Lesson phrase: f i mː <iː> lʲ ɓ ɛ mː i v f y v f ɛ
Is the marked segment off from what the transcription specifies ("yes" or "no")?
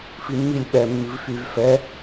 yes